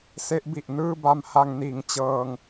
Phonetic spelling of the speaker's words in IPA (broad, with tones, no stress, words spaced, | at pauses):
se˦˥ʔbi˨˩ʔ nɯː˥˩ba˧mha˧ŋ niː˨˩ŋt͡ɕɤː˧ŋ